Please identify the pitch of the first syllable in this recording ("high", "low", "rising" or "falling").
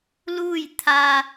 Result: falling